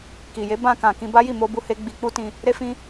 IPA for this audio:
ki˨je˨˦ bã˧kã˨ kĩ˧ba˦ji˦˨ mo˧bu˧ he˧ ɡ͡bi˧k͡pu˦tĩ˧ | ɾe˧fĩ˧

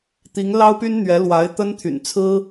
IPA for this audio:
t̪i˧˥ŋlɑ˥ʊ̯py˥n n̪ɥɛ˧˥lwa˧˥ɪ̯ t̪ə˥nt̪ʰy̰˨˩n t͡sʰɹ̩˥

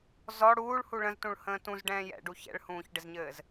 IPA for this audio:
zɔ ɽuːɭhu ɭə̃z tũɭhə̃ːtũz ɖɛ̃ːjɛ̰ɖu çɛ̰ɭhũːçɖɪzɲɘːz

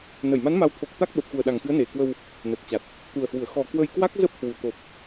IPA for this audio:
nə˧˩jma˨˦n ma˨˦wt̪ʰo˨˩k̚t̪a˦˥k̚ ɓə˨˩p̚xu˨˩ə̯ɗa˨˩ŋxɨ˨˦ə̯ ne˨˩kwə˧w | nə˨˩t̚t͡ɕa˨˩t̚ | t̪u˨˩ə̯hwu˧˩ə̯ xɔ˨˩ kwə˧jkwa˦˥k̚zə˦˥p̚hwu˨˩ t̪o˨˩p̚

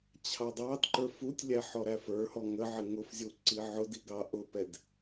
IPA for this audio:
t͡ɕʰɑdˤɑdǃə˞ futʲlʲæ ħɔɾæfə˞hɔ ŋəʕɪ ŋʊf zʲuǀiʕʊdi ɡɑʔʊpɛd

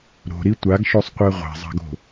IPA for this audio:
ɾo̤ɾi tʷaɡʃosˤqʷɛ ʁʷɛ̤zˤa̤ɡo̤

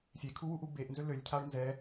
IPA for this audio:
sʲekʰuwuʔu beʔnzø lølʲcʰaɭ nzɛ

